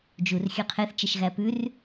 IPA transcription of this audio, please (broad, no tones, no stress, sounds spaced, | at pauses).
d͡ʒ u r xʲ ø qʰ e θ t͡ʃ ɛ ʃ ɣ æ p ʉ r